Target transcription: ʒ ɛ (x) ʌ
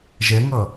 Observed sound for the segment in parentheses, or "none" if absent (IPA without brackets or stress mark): ŋ